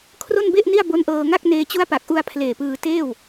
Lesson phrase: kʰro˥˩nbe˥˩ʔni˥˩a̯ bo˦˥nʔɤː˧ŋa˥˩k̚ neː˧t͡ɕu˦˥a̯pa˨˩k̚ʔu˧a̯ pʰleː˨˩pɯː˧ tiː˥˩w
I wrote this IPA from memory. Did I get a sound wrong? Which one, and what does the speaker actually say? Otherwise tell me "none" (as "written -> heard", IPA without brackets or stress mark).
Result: iː˥˩ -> eː˥˩